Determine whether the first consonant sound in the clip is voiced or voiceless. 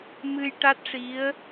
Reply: voiced